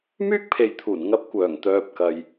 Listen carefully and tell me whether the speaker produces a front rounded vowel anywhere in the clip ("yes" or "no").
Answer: yes